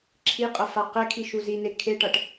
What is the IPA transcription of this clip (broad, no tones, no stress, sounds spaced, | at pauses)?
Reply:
ǁʰ i qʼ ʌ f a q ɛ kʰ i ʃ u z i n e kʰ e ʈ ʌ ʈ